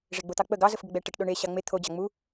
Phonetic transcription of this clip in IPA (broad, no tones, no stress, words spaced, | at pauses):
ʐeɡ͡bot̪ɑk͡pə ɡɑ zəfɡəɡ͡bɛʈəʈ ɗoɳe ɕɑŋ͡me t̪ʰo d͡ʑɑŋ͡mu